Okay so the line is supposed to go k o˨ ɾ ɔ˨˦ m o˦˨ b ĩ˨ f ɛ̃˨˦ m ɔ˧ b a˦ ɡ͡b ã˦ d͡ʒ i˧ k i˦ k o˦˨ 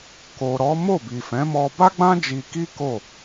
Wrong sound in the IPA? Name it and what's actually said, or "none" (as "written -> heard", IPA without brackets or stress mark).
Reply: ĩ˨ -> i˨